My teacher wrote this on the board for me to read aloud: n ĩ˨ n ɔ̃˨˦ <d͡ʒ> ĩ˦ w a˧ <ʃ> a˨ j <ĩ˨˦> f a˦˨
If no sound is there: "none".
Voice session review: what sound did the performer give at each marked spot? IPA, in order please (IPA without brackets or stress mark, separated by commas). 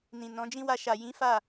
d͡ʒ, ʃ, ĩ˨˦